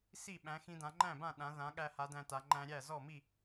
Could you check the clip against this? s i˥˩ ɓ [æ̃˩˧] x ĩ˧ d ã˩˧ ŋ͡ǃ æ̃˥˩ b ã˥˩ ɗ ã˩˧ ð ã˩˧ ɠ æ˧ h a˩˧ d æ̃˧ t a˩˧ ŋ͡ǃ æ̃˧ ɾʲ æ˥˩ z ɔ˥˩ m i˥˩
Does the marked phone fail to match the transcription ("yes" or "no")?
no